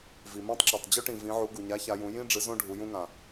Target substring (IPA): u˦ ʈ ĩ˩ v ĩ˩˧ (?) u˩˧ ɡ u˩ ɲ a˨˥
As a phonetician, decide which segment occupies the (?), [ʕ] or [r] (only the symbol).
ʕ